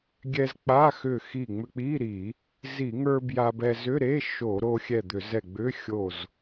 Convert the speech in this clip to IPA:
ɡʲɛ˧zk͡pa˧˥˧xʏ˧˩ xi˧˩ŋ͡mʏ˧k͡pi˧˥˧ɾi˧˩˧ | zi˧˩˧ŋə˞˧ bja˧bɛ˧ zʏ˧˥˧ɾe˧˥˧ ʃo˧˩˧ɾo˧xʲɛ˧˩ d̪ʏ˧˩˧zɛ˧˩ ɡ͡bʏ˧˥˧xʲo˧˩z

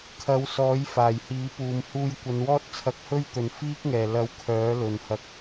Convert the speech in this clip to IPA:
kʰɐ˨˧wsɔː˨˥j faː˨˩jhiː˨˥puː˨˧m huː˧jkʷɐ˨˧nwɔː˥t̚ t͡sʰɐ˧k̚hɵ˥ɥt̪ɵ˨n fiː˥k̚ŋɛː˨˩lɐ˨˧w kʰœː˨˥lɵ˨nhɐ˧k̚

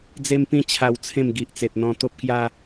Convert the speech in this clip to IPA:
d͡ze˦m pĩ˦ t͡ɕʰa˧wt͡sʰẽ˥˧m ɡi˨ʔt͡se˨t̚n̪ɔ̃˧ t̪o˦p̚kja˦

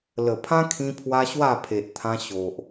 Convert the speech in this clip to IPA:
lə˨˩pʰã˦kʰĩ˧pʰwa˧ ɕwa˥˧pʰe˨ʔt̪ʰã˧ ɕo˨ʔ

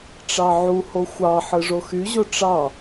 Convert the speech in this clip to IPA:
ʈ͡ʂɑʕuho xʷɑ ħɯʐoxyʑo ʈ͡ʂɑ

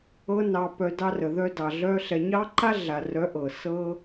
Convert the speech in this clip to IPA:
ɤ˦nɑ˧pœ˧ dɑ˧rə˨ðœ˧dɑ˨ ɮœ˧ ɬɛ˧ ɲɑ˦ǃa˦ ɮa˨rœ˨˦ ʔɤ˨ sɤ˦

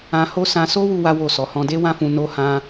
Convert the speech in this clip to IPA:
ã˧ho˦ sã˧so˦ wu˦wa˦wo˦˨sɔ˨˦ hɔ̃˧de˦ wã˦fũ˧ no˦hã˦

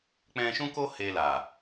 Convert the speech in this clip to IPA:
k͡pɛ̃˧ʃũ˦ko˦ he˧la˨

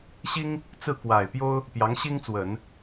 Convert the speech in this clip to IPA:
ɕi˥ŋ | t͡sɹ̩˥˩kwa˨˩ɪ̯pjo˥ʊ̯ | pjɑ˧˥ŋɕi˥ŋt͡swə˨˩˦n

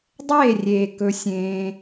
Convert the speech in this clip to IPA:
dˤeː˦˨rʲeː˨ kɵ˧sʲẽː˧

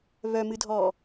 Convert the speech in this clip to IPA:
βœmɨdʱɔː

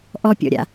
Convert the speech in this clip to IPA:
ʔɔpʲɔ̰ɾʲa̰

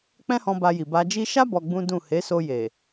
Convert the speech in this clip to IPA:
k͡pɛ̃˦hɔ̃˧ ba˧ ji˨ba˧d͡ʒi˦ ʃa˦ bɔ˧ɡ͡bũ˦dũ˦˨ he˨˦so˧ je˨

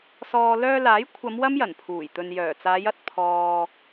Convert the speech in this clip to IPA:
sɔː˨ lœː˧laː˨˥jkʷʰɐ˨˧m wɐ˥mjɐ˨˩npʰuː˨˩j t̪ɵ˨njœː˨˩ t͡saː˨˧jɐ˧t̚ pʰɔː˧

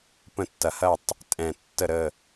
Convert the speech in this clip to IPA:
pə̃˥˧tːɐ˧hɐ˥˧tˤ | tʼɛ̃˥˧ tːə˥˧ɾə˥˧

